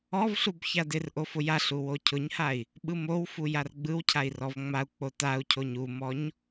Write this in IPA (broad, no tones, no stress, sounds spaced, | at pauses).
ɔ v ɬ u b ç a d ɪ r ʔ o f ʊ j a ɬ u w o cʰ ʊ ɲ h a i̯ | ɓ ɯ m o w f u j a r ɡ͡b ɯ w cʰ a i̯ r ɔ v ŋ͡m a u̯ k͡p o t a u̯ cʰ o ɲ u m ɔ ɲ